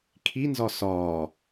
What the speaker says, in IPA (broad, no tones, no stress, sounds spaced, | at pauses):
kʰ i n z ɒ s ɒː